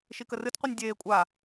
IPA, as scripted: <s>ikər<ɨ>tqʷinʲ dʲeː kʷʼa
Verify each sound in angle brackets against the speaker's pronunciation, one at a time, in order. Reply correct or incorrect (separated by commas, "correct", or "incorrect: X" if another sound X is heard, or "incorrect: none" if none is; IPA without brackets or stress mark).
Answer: incorrect: ʃ, correct